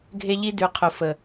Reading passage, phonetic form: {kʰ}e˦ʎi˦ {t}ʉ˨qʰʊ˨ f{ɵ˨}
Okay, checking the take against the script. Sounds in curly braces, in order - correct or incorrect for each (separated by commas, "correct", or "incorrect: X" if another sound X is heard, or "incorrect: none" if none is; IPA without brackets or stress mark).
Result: incorrect: ɡʱ, incorrect: d, incorrect: ə˨